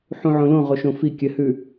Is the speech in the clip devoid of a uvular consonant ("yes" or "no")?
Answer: no